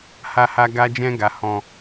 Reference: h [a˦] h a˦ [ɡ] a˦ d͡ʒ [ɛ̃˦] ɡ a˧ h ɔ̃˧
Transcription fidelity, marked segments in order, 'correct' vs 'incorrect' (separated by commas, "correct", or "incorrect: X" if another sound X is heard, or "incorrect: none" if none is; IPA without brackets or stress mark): correct, correct, correct